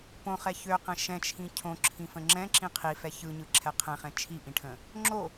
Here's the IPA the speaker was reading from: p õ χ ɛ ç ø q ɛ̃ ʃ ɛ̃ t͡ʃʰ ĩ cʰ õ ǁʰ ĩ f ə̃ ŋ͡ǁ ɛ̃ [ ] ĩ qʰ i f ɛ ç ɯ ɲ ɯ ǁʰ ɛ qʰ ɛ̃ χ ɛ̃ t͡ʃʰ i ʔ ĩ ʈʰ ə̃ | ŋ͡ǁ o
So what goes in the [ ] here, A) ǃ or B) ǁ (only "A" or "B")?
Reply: B